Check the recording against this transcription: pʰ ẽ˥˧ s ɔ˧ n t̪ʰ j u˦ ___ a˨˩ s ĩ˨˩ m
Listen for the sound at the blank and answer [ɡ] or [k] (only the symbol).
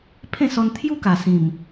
k